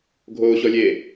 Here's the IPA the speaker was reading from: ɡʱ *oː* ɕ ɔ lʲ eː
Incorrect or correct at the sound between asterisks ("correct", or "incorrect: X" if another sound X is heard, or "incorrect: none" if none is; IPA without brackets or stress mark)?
correct